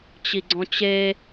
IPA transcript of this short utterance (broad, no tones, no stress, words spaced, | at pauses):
t͡ɕiɡ͡ǀɔ̃t͡ɕe